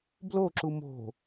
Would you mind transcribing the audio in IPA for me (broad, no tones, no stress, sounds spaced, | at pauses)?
b l o ǁ u m o̤